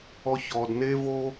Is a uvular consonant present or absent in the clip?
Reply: absent